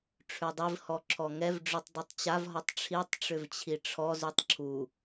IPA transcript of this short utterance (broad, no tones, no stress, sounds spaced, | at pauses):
ʈ͡ʂʰ ʉ dˤ i v h ɔ ǁʰ ɔ ŋ ɛ v ɖ͡ʐ ʉ tˤ dˤ i tˤ t͡ɕ a v ɦ ɔ tˤ ʈ͡ʂʰ i tˤ ʈ͡ʂ ʏ v t͡ɕʰ i ʈ͡ʂʰ ɔ z ʉ tˤ ǁʰ u